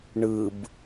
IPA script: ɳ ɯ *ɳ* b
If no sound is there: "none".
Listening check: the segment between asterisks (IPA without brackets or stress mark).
none